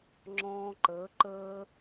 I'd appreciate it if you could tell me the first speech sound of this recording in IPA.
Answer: ŋ͡ǁ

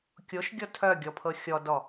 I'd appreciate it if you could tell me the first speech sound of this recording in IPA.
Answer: kʲ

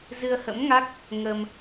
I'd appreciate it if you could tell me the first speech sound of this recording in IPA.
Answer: z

